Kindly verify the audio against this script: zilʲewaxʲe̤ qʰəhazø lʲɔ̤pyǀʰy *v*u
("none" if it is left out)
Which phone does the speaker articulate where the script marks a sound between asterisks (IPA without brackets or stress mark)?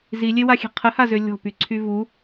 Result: v